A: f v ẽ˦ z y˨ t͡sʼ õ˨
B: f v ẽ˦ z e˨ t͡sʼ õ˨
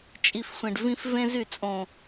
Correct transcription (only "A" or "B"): A